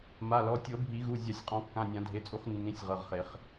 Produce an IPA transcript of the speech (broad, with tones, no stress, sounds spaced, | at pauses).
m a˩˧˩ l ɔ˩˧˩ tʲ ɤ˨˩˦ bʱ i˨˩˦ ɣ u˩˧˩ zʲ a˨˩˦ sʲ qʼ ɔ̃˨˩˦ kː ã˩˧˩ nʲ ã˨˩˦ dʱ e˩˧˩ t͡sʼ u˨˩˦ χ nː ĩ˩˧˩ sʲ ʁ ɤ˩˧˩ ʁ χ e˨˩˦ χ